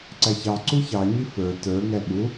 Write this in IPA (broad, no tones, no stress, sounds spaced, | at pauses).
ǀ æ ç ɑ ǀ u ç ɑ ɲ i f ə˞ t ə˞ ŋ ɛ ɓ u